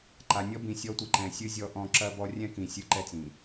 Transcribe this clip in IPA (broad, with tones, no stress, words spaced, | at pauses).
ǃa˨nʲɔ˦ bĩ˨sʲɔ˦tʷi˨ ǃɛ̃˨sʲɨ˦ zʲɔ˦ʔɔ̃˦ ǁɐ˦bɔ˦ rʲɛ̃˦kĩ˨ sʲɨ˦ ǃɛ˦t͡sĩ˨